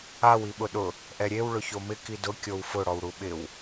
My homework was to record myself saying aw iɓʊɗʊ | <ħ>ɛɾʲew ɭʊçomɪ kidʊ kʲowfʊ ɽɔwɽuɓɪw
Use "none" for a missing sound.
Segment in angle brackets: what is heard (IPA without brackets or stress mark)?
ʔ